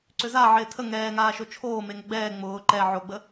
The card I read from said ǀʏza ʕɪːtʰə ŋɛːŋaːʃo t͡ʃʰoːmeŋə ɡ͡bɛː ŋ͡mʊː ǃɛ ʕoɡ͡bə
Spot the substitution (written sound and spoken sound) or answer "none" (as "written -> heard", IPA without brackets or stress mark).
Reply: none